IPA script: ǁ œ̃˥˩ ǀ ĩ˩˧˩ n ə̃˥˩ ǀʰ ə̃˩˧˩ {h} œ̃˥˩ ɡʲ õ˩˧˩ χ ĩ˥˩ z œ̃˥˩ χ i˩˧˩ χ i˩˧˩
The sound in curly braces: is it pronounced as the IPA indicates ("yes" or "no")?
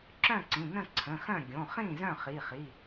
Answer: no